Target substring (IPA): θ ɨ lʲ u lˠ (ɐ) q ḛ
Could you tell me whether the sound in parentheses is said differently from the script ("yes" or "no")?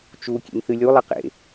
no